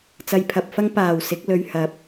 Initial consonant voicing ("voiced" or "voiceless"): voiceless